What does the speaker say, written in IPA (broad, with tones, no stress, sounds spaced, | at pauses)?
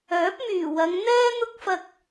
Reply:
œː˨˥ p̚ m yː˨˩ w ɐ˨˧ ŋ n̪ ɛː˥ n̪ ʊ˥ k̚ f ɐ˧ k̚